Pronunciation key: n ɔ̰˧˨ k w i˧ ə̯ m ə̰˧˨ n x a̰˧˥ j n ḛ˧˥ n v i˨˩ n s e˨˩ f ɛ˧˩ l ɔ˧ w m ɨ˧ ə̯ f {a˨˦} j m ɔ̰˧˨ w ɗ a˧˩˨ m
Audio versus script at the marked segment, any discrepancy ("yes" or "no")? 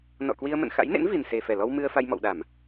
yes